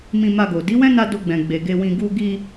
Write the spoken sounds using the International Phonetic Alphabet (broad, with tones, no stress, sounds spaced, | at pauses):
m ĩ˧ m a˧ ɡ o˨ d i˨˦ w ɛ̃˦ n a˧ d o˧ ɡ͡b ɛ̃˨ ɡ͡b e˨ ɡ e˧ w ĩ˧ ɡ u˧ ɡ i˧